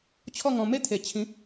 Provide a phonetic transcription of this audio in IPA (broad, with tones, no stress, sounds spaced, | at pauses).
t͡ɕʰ ɔ˥˧ ŋ ɔ̃˧ m e˦ t̪ʰ e˨˩ t͡ɕʰ ĩ˨˦